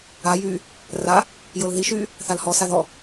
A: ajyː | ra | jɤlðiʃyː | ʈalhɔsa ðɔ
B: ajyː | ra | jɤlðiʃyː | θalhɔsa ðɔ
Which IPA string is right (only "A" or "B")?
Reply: B